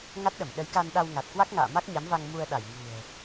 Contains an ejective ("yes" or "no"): no